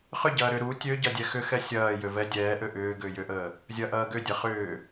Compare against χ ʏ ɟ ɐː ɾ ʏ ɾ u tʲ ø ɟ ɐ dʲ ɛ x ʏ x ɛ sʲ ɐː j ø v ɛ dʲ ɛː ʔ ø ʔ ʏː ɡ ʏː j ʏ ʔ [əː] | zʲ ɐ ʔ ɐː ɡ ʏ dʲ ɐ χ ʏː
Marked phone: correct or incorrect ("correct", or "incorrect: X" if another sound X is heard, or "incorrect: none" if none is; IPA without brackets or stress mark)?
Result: correct